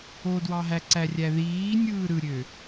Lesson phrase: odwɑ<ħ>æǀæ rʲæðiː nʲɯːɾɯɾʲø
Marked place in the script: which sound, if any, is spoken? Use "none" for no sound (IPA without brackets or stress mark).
ɦ